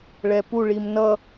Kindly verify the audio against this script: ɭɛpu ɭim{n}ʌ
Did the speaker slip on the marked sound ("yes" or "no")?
no